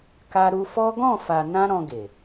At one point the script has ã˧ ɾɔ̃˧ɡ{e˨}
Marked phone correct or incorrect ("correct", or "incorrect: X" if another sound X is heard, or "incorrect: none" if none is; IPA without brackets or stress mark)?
correct